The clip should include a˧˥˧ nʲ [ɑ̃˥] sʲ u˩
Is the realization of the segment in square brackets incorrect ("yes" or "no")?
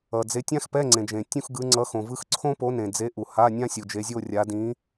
yes